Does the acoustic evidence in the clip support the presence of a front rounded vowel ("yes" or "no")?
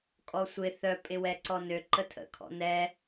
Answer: yes